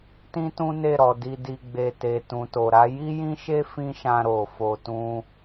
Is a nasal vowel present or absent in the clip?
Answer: present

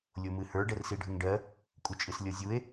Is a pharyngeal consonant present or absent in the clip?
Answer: absent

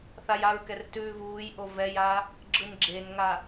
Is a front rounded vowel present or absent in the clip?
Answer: absent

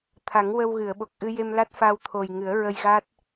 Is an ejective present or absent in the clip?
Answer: absent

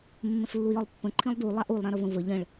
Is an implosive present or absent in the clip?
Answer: absent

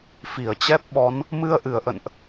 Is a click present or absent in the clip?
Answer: absent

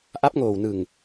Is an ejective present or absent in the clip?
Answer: absent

